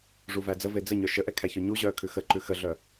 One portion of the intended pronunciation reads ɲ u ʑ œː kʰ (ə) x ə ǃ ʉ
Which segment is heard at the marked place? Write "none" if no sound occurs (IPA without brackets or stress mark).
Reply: ʉ